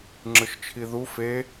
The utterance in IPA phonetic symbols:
ŋ͡ǁ ɯ ʃ t͡ʃʰ i ð u f e

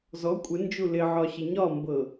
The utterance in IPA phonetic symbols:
z ɔ kʷʼ ɪ n d͡ʒ u l ɪ ʕ ɒ ɕ ɪ ɲ ɒ m b ɤ

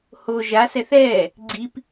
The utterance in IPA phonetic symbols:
h o ʒ a s ɛ θ ɛː | ɡ͡ǀ i p

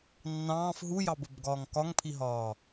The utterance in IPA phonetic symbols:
nː ɑ̃ː f ɦ u j ɑ b ə b ɡ ɒː ŋ k ɒ ŋ pʰ i ɦ ɒː

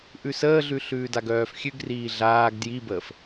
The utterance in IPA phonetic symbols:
ʔ ʉ s əː ɮ ʉ ɬ ʉː d a ɡ œː f xʲ ʉ ɡ r iː ɮ aː ɡ d j i b əː f

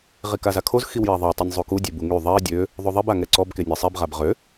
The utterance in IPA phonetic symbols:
ʁ i k a z a kʰ o z x i w j ɛ ðˤ e tˤ y nʲ zˤ u k u dʲ e b u ŋ y ðˤ ɛ dʲ ø | ðˤ o ðˤ i b a ŋ ɛ ǀ ɔ b k e nʲ a sˤ i b ʁ a b ʁ ø

